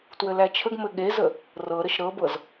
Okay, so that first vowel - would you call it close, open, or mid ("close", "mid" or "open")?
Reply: mid